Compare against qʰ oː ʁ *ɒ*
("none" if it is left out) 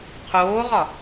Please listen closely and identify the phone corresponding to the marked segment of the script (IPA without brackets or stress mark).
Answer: ɒ